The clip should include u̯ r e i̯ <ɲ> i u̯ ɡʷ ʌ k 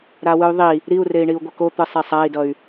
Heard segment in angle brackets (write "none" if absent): ɳ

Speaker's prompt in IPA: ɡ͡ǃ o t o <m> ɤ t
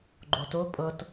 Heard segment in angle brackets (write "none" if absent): pʼ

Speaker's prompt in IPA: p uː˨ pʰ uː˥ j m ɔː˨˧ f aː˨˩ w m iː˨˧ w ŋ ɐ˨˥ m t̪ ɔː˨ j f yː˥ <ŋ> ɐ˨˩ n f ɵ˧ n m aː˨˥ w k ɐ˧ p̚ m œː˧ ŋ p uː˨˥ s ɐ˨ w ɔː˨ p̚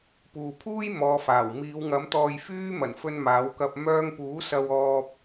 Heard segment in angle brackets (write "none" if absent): m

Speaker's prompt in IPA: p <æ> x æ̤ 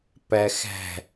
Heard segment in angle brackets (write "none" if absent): æ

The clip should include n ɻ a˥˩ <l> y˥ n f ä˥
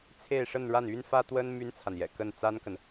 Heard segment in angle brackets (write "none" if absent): n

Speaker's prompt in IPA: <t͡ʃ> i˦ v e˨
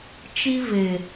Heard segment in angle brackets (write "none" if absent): t͡ʃ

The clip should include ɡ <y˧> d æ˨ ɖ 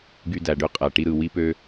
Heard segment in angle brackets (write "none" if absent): y˧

